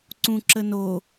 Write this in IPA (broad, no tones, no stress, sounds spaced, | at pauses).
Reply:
ǀ ũ ǁ ə n o